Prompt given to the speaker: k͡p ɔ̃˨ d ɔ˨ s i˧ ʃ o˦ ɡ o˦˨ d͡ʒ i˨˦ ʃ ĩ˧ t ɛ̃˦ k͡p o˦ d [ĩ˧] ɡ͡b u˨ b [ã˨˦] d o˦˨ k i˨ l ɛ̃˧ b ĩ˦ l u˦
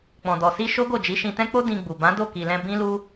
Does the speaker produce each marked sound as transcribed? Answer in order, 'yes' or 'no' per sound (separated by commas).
yes, yes